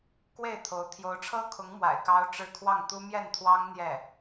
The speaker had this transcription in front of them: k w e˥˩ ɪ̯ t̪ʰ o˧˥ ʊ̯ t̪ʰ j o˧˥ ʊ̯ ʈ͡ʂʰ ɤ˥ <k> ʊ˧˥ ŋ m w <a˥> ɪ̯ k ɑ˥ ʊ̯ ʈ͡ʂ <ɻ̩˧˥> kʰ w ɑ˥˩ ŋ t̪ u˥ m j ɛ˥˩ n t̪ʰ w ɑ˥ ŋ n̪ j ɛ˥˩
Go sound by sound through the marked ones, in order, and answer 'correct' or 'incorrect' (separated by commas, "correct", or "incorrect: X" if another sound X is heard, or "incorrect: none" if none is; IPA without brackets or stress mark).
incorrect: kʰ, incorrect: a̰˨˩, incorrect: ɻ̩˥˧